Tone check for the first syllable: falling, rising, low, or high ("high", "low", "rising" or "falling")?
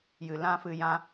low